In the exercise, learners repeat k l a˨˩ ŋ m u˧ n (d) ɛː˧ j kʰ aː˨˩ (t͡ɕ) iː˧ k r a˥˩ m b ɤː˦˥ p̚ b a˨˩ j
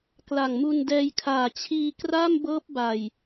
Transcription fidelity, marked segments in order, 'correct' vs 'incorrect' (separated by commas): correct, incorrect